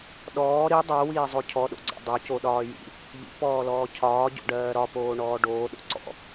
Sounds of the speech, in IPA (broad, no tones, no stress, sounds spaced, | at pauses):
ɗ ɔː ɾ i dˤ ɜ w iː zˤ o cʰ ɔ ɗ o̰ ɡ͡ǀ ɔ̰ dˤ o c o ɗ ɒː j ḭ | ʎ ḭ p ɔː l ɔː cʰ ɒː ɟ o̰ ɖ ɜː ɾ ɒ p oː ɳ ɔː ɖ oː ɗ o̰ ǀ ɔ̰